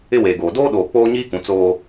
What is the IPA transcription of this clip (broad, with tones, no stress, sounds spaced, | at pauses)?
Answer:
ɪ˦ w eː˨ ɡ oː˨ d oː˦ ɗ oː˨ k͡p oː˦ ɲ iː˦ k ũ˨ t͡s oː˦